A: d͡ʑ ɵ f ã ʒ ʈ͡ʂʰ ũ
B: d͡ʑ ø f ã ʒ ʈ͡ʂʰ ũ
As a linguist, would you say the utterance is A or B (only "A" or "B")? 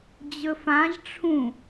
A